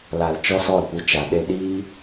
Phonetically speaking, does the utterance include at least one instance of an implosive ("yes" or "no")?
yes